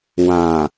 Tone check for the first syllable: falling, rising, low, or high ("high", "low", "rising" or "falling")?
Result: low